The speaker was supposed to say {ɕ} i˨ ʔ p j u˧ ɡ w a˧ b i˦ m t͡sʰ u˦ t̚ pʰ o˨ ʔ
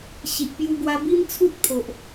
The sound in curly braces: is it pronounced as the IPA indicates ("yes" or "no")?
yes